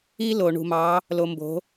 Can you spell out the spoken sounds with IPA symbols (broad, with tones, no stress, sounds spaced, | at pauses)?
i˦ l o˨ ɳ ṳ˨ m ɑ˨˦ | l o˨ m b o̤˨˦